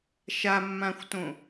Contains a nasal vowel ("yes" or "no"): yes